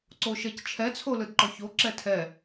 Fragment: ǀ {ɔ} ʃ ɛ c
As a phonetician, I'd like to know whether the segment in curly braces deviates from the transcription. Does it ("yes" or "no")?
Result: yes